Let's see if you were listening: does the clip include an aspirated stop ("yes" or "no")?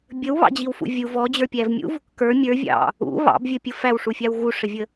no